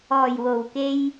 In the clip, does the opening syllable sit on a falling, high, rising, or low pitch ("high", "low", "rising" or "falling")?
low